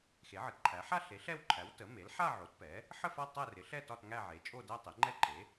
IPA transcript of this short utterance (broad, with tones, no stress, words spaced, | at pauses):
xe˩˥ʕə˩˥tǃʰæ˩˥ ħa˥˧ ɬe˩˥ ɬɛ˥˧wǃʰæ˩˥w tə˩˥me˩˥l ħa˥˧ʕo˩˥t pɛ˩˥ | ħə˥˧fa˥˧ tˤæ˥˧rɪ˩˥ɬɛ˥˧ tɒ˥˧tŋæ˥˧ʕe˩˥ t͡ʃʼo˥˧dæ˥˧tˤe˩˥ ŋ͡ǃɛ˥˧ǃe˩˥